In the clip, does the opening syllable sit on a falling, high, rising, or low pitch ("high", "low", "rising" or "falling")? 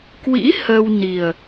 rising